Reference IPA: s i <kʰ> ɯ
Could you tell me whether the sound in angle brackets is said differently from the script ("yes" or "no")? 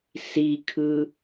no